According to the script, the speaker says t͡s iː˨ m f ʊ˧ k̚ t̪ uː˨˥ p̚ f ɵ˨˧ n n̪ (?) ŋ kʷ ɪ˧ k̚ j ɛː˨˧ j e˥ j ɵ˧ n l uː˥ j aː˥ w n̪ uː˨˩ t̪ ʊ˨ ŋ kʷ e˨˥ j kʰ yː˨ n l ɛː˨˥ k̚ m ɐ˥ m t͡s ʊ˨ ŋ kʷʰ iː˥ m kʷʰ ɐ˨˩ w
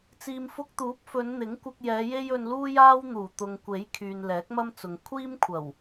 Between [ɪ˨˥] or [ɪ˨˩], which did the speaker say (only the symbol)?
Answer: ɪ˨˥